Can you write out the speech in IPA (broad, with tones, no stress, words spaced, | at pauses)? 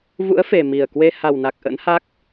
vṵ˧˥ə̯fe˨˩ mi˨˩ə̯kwe˧ ha˨˩wna˨˩k̚ ʔə̰˧˥nha˦˥k̚